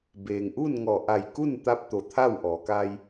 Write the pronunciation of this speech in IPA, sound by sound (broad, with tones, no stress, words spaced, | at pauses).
beː˩ŋʔuː˥˨nŋɔː˧˩ ʔa˧˩jku˥˨nt̪a˧p̚t̪o˩ t̪ʰa˥˨wʔɔː˩˧ka˧j